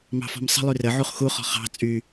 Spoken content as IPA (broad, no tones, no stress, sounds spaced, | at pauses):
m ɑ̤ f ɔ̤ m sˤ ə̤ lˠ y r ə ʕ u χ x u χ ɔ̤ χ ɑ̤ t͡sʼ y